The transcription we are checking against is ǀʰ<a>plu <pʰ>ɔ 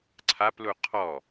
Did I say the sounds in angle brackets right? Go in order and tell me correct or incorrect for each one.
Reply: correct, incorrect

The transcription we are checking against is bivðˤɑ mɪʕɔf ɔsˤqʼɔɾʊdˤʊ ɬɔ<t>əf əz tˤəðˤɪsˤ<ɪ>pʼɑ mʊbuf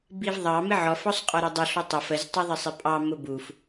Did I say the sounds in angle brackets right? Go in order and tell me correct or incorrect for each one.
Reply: incorrect, correct

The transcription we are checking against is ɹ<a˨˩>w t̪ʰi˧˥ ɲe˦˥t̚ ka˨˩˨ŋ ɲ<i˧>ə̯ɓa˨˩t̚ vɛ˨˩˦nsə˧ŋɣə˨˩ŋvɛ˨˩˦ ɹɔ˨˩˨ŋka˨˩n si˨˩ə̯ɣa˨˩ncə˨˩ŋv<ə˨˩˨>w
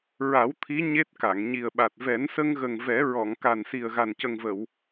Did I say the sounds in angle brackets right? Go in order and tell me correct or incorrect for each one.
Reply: incorrect, incorrect, correct

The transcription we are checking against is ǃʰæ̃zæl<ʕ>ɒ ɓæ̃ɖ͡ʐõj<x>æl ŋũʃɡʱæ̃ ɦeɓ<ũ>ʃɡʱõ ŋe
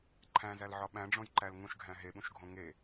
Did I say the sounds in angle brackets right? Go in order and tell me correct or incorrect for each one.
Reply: correct, incorrect, correct

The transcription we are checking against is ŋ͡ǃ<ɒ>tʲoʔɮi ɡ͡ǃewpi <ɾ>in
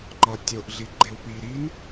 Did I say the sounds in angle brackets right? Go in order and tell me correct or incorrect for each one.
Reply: correct, correct

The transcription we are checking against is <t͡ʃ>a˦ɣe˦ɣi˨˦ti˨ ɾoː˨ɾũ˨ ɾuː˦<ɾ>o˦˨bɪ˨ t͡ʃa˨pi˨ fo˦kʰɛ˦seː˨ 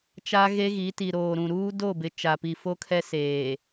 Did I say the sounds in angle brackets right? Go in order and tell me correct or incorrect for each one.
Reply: correct, incorrect

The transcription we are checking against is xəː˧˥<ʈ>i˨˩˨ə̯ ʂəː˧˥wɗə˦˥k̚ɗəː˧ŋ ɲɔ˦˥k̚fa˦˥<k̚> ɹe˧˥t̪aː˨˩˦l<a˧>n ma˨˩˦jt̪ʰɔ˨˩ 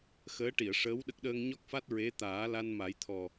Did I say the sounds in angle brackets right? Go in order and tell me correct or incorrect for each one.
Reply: correct, incorrect, correct

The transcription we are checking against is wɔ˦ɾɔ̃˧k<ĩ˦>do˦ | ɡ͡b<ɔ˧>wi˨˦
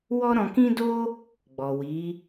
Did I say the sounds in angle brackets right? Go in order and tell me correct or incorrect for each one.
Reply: correct, incorrect

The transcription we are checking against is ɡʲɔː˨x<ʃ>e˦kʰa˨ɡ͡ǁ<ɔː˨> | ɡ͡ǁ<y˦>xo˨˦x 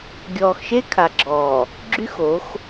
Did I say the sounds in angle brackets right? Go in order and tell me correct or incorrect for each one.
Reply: correct, correct, correct

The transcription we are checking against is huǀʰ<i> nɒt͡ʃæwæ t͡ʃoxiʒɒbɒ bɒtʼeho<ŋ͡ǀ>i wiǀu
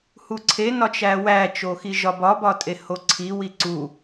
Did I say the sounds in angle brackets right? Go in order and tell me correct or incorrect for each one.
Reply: incorrect, incorrect

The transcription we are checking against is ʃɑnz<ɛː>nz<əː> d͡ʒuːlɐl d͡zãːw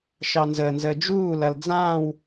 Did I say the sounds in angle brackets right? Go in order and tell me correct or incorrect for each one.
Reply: incorrect, correct

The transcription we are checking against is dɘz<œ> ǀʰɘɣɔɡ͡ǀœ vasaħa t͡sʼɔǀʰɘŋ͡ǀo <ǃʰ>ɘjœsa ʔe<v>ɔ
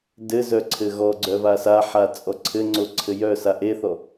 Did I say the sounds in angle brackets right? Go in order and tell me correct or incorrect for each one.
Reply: correct, incorrect, incorrect

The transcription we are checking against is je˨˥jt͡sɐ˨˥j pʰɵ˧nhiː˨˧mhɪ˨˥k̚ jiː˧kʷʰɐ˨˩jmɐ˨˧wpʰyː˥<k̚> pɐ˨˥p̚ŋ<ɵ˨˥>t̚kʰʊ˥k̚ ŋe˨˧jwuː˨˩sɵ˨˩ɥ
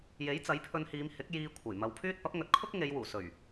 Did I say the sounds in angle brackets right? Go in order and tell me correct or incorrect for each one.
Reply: incorrect, correct

